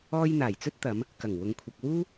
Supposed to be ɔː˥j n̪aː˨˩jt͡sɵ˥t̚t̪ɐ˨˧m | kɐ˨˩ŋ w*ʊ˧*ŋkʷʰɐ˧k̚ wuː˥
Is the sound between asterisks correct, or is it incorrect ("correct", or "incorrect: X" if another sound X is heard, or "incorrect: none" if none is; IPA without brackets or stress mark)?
correct